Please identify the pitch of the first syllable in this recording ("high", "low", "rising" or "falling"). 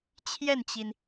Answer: falling